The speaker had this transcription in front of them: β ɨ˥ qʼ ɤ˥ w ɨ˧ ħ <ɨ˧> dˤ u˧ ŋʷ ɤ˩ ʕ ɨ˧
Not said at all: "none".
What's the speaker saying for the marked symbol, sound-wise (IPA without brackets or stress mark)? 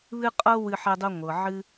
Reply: ɛ˧